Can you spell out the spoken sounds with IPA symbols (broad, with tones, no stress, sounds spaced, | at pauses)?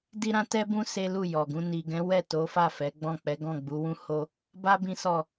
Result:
d i˦ ɾ ã˦ t ɛ˦ b ũ˦ s e˦ l u˦˨ j ɔ˨ ɡ ũ˧ n i˨ ɡ ɛ̃˨˦ w ɛ˦˨ t o˨˦ f a˦˨ f ɛ˨˦ ɡ͡b ɔ̃˦˨ k͡p ɛ˨˦ ɡ ɔ̃˦˨ ɡ͡b u˨˦ w ũ˦ h o˦ | b a˦ b ĩ˦ s ɔ˦˨